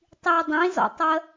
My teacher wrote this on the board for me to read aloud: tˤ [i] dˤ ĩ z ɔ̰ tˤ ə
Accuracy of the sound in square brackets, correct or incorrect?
correct